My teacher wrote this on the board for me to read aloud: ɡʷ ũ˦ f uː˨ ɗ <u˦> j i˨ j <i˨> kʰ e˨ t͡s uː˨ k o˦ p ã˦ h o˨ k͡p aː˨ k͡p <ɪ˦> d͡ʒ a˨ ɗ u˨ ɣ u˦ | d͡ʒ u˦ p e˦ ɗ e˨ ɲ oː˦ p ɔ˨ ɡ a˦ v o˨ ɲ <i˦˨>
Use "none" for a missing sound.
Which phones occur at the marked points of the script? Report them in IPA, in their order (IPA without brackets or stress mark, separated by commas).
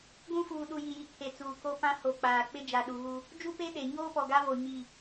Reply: u˨, i˨, ɪ˦, i˦˨